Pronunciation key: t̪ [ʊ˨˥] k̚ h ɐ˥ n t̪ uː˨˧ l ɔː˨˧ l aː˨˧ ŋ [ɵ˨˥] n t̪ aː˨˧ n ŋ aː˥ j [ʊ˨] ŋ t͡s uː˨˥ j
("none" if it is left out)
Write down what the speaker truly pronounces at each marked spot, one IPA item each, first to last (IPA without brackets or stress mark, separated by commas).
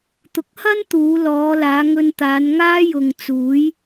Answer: ʊ˨˥, ɵ˧, ʊ˨